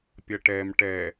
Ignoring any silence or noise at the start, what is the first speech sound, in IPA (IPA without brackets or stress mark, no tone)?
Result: pʲ